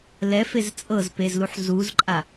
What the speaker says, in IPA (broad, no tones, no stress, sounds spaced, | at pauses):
l ɛ f e z t͡sʼ ɤ z p e z l u ħ z u z ǃʼ a